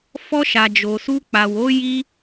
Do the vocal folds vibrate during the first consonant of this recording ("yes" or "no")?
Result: no